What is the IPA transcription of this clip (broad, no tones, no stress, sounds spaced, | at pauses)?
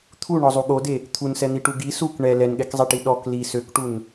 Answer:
t̪ʰ u ɳ ɔ zˤ u ɠ o d e | t̪ʰ u n s ɛ n̪ i ʈ u ɡ i s u k ɳ ɛ l ɛ n ɠ ɛ k zˤ ɛ ʈ i ɗ ɔ k l i s ø k ʈ u n